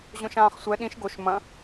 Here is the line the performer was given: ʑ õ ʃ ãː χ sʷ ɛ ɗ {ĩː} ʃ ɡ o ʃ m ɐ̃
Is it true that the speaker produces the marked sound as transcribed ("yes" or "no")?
no